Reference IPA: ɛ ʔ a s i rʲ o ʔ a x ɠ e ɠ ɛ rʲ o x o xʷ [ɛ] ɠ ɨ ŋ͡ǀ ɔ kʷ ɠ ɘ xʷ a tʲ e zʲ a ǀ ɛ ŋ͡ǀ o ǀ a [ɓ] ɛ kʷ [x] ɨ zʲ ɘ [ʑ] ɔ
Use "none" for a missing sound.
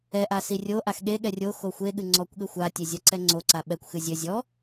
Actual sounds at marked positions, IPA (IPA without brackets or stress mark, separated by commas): e, ɓ, x, zʲ